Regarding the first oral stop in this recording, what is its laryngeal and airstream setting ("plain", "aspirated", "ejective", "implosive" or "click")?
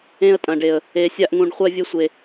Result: ejective